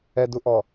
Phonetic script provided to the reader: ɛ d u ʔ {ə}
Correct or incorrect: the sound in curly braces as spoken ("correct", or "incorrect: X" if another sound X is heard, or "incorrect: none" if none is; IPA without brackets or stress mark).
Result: incorrect: ɔ